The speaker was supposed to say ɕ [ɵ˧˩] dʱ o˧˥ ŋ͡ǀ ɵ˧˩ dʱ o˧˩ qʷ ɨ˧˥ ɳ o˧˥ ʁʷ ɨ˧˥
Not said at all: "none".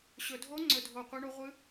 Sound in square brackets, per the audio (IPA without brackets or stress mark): ɵ˩